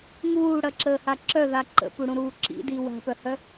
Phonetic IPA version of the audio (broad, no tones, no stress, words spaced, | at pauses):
ŋuːɽɐǁəːha ǁœða ǃə̰puɽũɾuː ǁḭdi wa̤pœhœ